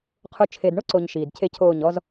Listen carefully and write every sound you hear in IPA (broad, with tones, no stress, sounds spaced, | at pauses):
qʰ ʊ˧ t͡ʃʰ e˨ d ɳ ʊ˦ ǀ o˨ ɲ ʃ iː˨ d cʰ e˦ cʰ oː˦˨ ɲ ɔ˧ z